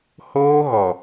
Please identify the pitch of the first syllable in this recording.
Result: high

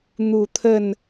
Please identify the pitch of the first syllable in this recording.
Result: low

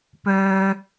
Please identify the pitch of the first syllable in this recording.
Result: high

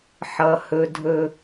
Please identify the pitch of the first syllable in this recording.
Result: low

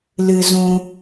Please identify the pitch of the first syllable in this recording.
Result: high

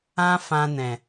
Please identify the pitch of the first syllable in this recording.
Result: high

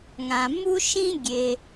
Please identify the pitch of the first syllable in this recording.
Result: low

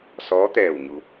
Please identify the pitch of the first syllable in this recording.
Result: rising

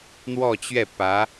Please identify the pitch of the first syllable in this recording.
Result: falling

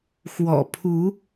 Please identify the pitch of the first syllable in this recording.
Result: low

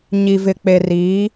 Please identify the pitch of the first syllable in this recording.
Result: low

